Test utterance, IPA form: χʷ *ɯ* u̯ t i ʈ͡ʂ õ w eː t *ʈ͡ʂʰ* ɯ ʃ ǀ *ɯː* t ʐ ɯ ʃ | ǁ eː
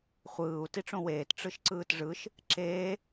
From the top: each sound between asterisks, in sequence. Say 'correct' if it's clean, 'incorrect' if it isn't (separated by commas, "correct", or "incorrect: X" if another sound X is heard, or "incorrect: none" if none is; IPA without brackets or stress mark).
incorrect: ɯː, incorrect: ʈ͡ʂ, correct